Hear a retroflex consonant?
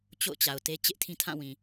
no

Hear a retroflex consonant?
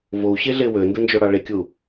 yes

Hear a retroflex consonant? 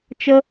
no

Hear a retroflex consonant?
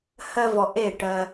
yes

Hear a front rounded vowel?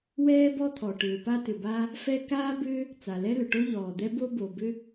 yes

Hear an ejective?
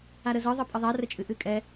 yes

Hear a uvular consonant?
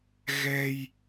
no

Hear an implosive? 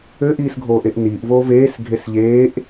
no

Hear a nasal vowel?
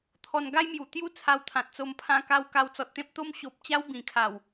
yes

